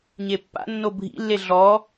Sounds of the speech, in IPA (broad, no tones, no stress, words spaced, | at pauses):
ɲepːa̰ nːobʱḭlːe ɮɔ